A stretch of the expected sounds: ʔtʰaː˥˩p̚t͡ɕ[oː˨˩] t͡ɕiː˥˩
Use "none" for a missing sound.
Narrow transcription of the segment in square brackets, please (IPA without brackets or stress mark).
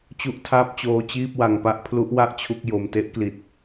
oː˦˥